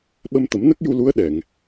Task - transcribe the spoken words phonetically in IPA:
ɓ ə˧ m t̪ ə˨˩˦ m n ə˦˥ k̚ j u˧ l u˧˥ ə̯ ɗ ɛ˨˩˨ ŋ

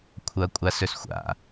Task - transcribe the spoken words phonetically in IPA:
kʷʰ ɐ kʷʼ a s ɵ s xʷ a̰

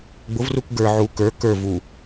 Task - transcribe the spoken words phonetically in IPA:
ɡ͡b ʊ v r u k ɡ ə˞ ʕ u k ə˞ k ə˞ v u

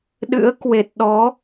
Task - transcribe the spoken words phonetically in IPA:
ɗ ɨ̰˧˥ ə̯ k w e˨˩ t̚ ɗ ɔ˨˦

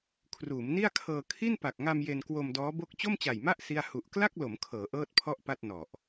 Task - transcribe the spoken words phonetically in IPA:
kʰ r uː˩˦ m n i˥˩ a̯ kʰ ɤː˧ kʰ i˥˩ n p a˨˩ k̚ ŋ a˧ m j e˧ n k w o˧ m d ɔː˦˥ b o˥˩ k̚ t͡ɕ o˥˩ m t͡ɕ a˨˩ j m a˥˩ ʔ s i˥˩ a̯ h u˨˩ ʔ k l a˥˩ k̚ l o˩˦ m kʰ ɤː˩˦ ʔ ɤː˥˩ t̚ pʰ ɔ˥˩ ʔ p a˥˩ t̚ n ɔ˨˩ ʔ

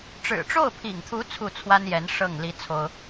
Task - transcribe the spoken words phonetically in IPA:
ʈ͡ʂ ɻ̩˨˩ ʈ͡ʂ o˥˩ ʊ̯ pʰ ḭ˨˩ ŋ t̪ʰ u˧˥ t͡sʰ u˥˩ t͡sʰ w a˥ n j ɛ˧˥ n ʂ ɤ˥˩ ŋ l i˥ t͡sʰ o˥ ʊ̯

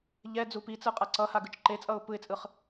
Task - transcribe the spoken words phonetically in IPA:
ʎ ɛ d͡z u p i t͡s ɯ qʼ a ǀ ʌ h a ɡ ɯ t͡ʃ ǃ e t͡sʼ ʌ ʊ̯ p ɯ ɪ̯ t͡sʼ ɯ χ

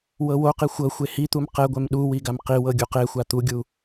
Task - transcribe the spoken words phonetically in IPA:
w ɤ w o q i xʷ ɤ xʷ e h i t̪ u m q ɛ ɡʷ ɛ m ɗ u w i ɡ a m q i w ɤ ɡʲ u q e xʷ a t̪ u ɡʲ u

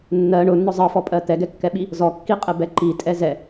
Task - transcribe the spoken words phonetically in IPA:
nː ɜ ɳ ʊ nː ɔ zˤ ɜ f ɔ pʼ ɜ t̪ ɛ ɡ ɛ kː ɛ ɓ i | z ɔ kː i qʼ ɛ b ɛ ǃ i tʼ ɛ z ɛ

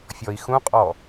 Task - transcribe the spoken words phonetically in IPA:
fʲ ɔ i̯ x ũ qʼ ɔ

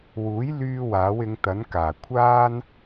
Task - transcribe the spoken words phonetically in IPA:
w uː˨˥ j l yː˧ w aː˨˥ w ɪ˨˧ ŋ t̪ ɐ˨˥ n k aː˨˩ kʷʰ aː˥ n

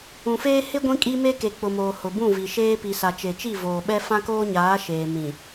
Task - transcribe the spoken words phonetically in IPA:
ũ˨ f eː˦ h ɪ˦ ɡʷ ĩ˦ kʼ i˦ m e˦ k e˨ k͡p ʊ˨ m oː˨ h ʊ˨ b ũ˦˨ v i˨ ʃ eː˦ p i˨ s a˨ t͡ʃ e˨ t͡ʃ i˦˨ v oː˨ ɓ ɛ˦ f ã˦ k oː˦ ɲ aː˨˦ ʃ eː˨ m ĩ˨

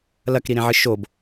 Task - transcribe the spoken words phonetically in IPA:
l ɐ k ɾ i ɾ ẽ ʕ ɨ ʃ o b

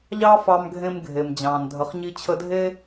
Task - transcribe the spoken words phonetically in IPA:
ʎ ɑ˥ f ɑ˧ m ɡʱ ẽ˧ m ɡʱ e˩ m d͡ʑ ɑ̃ː˩ n dʱ ə˩ χ ɲ i˧ t͡ɕʰ ə˧ dʱ e˥

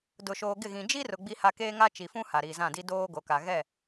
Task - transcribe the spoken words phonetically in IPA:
d ʊ˨ ʃ oː˨ ɡ ɪ˦˨ ɣ ĩ˨ d͡ʒ i˦ r ʊ˨ ɡ͡b i˦ h a˦ k eː˦ ŋ a˦ t͡ʃ i˨ f ũ˦ h a˨ ɾ iː˨ z ã˦˨ d i˦ d oː˦ ɡ o˨ k a˨ ɣ ɛ˦˨

